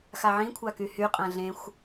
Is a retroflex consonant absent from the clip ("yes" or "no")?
yes